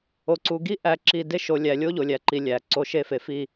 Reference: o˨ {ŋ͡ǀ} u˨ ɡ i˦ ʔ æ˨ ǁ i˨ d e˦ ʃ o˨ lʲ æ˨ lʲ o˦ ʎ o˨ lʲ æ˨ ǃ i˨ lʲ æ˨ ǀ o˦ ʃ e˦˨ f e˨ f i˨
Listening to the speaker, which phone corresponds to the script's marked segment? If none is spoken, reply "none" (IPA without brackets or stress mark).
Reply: ǀ